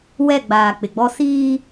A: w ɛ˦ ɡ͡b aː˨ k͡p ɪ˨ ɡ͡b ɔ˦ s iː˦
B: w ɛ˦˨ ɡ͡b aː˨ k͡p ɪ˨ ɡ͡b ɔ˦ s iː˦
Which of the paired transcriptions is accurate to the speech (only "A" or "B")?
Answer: B